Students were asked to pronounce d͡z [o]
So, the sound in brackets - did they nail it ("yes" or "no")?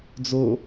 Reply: yes